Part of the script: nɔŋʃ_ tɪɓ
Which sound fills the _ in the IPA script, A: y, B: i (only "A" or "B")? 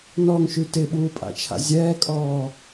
A